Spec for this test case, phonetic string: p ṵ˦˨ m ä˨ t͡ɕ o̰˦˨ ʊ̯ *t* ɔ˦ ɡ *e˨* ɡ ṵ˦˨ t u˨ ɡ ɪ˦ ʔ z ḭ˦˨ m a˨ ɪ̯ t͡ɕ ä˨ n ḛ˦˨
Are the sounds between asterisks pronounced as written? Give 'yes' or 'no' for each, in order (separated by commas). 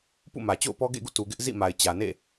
no, no